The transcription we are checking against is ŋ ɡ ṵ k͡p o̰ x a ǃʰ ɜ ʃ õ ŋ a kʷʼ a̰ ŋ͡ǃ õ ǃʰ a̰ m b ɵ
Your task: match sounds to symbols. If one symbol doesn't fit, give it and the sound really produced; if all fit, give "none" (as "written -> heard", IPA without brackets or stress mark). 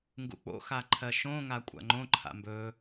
none